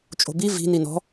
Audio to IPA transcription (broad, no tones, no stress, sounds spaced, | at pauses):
t͡ʃʼ o̤ b i v i̤ n i n ɔ̤